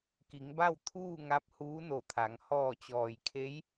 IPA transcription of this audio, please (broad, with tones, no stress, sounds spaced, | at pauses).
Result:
k i˩˧ ŋ b a˥˨ w t̪ʰ uː˥˨ ŋ a˧˥ p̚ h uː˧˥ n o˧˩ t̪ʰ a˩˧ ŋ h ɔː˧˩ t͡ɕ ɔː˩ j kʰ e˧˥ j